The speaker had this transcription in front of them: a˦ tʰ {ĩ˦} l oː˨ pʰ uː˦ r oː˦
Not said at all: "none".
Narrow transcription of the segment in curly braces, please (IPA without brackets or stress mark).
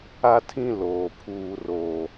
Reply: ĩ˦